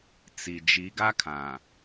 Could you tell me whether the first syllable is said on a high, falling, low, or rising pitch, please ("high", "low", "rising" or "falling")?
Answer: low